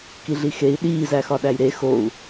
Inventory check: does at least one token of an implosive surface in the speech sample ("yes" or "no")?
yes